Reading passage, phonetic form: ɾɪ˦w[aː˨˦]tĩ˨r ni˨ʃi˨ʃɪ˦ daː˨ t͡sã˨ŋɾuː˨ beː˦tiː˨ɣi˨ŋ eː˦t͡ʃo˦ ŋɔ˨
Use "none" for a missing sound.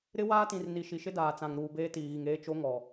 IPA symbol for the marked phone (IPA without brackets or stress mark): aː˦